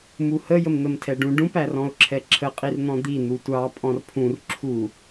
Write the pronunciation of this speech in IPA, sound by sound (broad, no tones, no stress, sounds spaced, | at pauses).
m u h ə j ə m n̪ ə m tʰ ɛ ɖ ũ ɖ ũ p æ r ɔ̃ ʊ̯ ǁʰ ɛ ǁʰ ə qʼ i r n̪ ɔ̃ d̪ i n̪ u tʷ ɑ pʼ ɔ̃ r pʰ ũ r ǁʰ u